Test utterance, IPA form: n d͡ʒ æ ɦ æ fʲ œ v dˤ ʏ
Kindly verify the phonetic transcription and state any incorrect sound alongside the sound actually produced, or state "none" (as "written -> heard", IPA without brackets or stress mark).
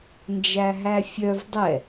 ʏ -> ɛ